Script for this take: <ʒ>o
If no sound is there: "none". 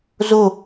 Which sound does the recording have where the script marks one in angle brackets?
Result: z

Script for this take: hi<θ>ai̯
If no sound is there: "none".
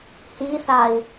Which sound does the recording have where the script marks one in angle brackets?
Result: θ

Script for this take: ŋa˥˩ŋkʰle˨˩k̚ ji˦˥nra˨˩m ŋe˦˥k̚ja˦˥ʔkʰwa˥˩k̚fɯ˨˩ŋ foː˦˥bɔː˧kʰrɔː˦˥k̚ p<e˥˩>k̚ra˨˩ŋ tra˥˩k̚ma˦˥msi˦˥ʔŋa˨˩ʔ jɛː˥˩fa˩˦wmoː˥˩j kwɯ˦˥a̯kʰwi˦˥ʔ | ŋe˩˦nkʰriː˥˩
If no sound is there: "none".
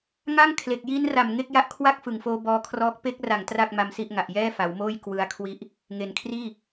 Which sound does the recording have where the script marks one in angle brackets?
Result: e˦˥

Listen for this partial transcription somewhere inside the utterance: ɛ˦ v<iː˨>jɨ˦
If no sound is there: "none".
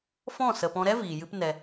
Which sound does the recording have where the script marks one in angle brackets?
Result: iː˨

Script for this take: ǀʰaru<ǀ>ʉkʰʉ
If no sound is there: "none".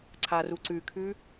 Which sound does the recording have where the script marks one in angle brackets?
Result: ǀ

